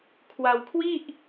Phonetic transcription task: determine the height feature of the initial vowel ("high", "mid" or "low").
low